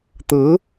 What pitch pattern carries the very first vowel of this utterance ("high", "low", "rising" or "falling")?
rising